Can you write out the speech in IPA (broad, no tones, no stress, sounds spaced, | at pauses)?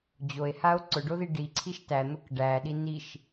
d͡ʑ o e̯ h a o̯ ǀ ʊ ɖ o ð i ɖ i ǀʰ i ʃ t æ n̪ ʊ k ɖ æ ɗ i n i ʃ